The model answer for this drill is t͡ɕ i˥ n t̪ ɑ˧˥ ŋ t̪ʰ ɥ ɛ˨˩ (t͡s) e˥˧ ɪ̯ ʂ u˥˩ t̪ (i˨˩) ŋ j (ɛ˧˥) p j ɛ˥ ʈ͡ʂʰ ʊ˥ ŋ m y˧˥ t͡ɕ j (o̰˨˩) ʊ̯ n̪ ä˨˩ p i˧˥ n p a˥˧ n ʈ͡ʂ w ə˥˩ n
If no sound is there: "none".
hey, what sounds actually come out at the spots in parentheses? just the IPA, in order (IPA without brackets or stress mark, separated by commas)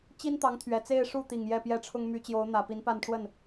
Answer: t͡s, i˨˩, ɛ˥˩, o˧˥